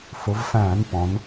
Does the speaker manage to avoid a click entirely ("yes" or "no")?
yes